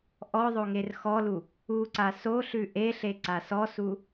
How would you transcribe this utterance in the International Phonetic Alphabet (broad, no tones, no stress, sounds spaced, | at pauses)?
ʔ ɔ ðˤ o ŋ e r x ɔ l u | u ǀ a s o ɬ ʉ ʔ e ɬ e ǀ a s ɔ s u